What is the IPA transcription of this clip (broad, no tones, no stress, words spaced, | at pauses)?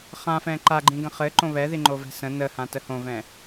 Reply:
χãfɛ̃ ǃaɡ͡ǃĩɡə̃ χɘǃõ βɛ ðiŋ͡ǃovɛ̤sə̃ nəhã təhõvɛ̃